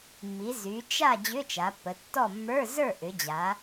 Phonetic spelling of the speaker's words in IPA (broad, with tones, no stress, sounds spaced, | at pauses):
mː i˩˧ z y˩˧ t͡ʃ a˥˨ d͡ʑ ʏ˧˥˧ t͡ʃ a˩˧ pː ə˩˧ tː ɔ˥˨ mː ə˞˧˥˧ z ə˞˥˨ ʔ ʏ˩˧ d͡ʑ a˩˧